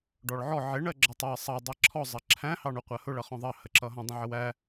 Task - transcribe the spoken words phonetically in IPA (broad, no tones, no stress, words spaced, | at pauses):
ɖɔɭʕɔ ʕɪ ɳɜɡ͡ǁʌtˤɑə̯ sˤɑ dˤæǁʰɔ zˤɜǁʰæ̃ hɑɳuqʷɜhʊ ɭʌχɔ̃ðˤɑ həǁʌɦɔ̃ dˤə̃ʕəwæ